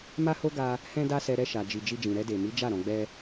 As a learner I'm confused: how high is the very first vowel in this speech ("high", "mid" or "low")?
low